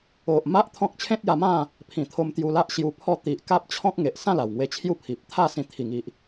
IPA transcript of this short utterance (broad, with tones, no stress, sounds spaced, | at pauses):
o˨ ʔ m a˦ ʔ t̪ʰ ɔ̃˦ k̚ t͡ɕʰ ẽ˦ t̚ j a˧ m ã˥˧ | pʰ ĩ˨˩ t̪ʰ o˧ m t̪ j u˧ l a˦ ʔ ɕ j u˧ pʰ ɔ˥˧ t̪ i˨ ʔ k a˦ p̚ t͡ɕʰ ɔ̃˦ k̚ ŋ e˨ ʔ s ã˥˧ l a˨˩ w ŋ w e˧ t͡ɕʰ j u˥˧ pʰ i˨ p̚ t̪ʰ a˥˧ s ĩ˧ t̪ʰ i˨˩ ŋ i˨ ʔ